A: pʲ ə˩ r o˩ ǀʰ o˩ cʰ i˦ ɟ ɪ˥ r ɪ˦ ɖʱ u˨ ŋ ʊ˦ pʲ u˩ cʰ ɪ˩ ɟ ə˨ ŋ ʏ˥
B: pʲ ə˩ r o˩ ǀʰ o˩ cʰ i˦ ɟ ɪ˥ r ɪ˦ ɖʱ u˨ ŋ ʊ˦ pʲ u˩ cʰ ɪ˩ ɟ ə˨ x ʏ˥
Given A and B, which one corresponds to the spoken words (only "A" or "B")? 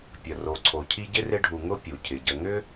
A